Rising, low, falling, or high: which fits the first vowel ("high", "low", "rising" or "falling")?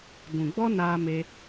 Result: low